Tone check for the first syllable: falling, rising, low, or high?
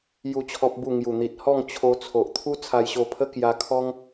falling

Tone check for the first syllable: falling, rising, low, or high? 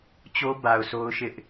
high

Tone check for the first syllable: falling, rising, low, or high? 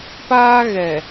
high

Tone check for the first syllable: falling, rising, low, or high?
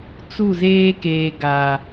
falling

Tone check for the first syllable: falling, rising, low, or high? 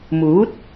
rising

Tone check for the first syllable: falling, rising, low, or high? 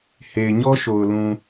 low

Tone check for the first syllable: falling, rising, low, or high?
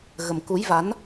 low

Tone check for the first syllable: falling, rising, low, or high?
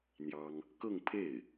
high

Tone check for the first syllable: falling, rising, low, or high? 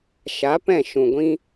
rising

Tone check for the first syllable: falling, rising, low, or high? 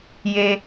high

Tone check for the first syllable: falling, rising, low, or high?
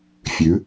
rising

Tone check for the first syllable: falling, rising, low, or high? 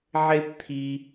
high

